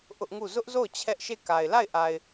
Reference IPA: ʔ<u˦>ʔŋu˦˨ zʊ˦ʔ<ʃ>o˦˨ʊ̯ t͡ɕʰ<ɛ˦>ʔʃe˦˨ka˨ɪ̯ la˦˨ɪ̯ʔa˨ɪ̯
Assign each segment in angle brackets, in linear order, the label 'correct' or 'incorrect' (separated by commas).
incorrect, incorrect, correct